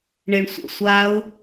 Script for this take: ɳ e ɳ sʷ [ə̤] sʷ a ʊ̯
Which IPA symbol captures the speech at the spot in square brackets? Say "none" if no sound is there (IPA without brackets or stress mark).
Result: ə̰